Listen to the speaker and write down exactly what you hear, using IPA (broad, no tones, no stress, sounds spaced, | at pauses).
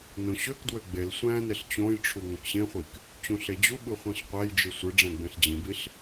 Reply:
n õ ɕ ø k d w ø ɡ͡b e l sʷ æ̃ n e ɬ t͡ɕ õ j ʈ͡ʂʰ u ŋ õ k ɕ ẽ χʷ i k | t͡ɕ ũ ɬ e d͡ʑ u ɓ ɯ χʷ ĩ ɬ qʷ æ j d͡ʒ ɯ sʷ ɯ ɖ͡ʐ æ̃ ɡ͡b ẽ ɬ d͡ʑ ĩ b i ɬ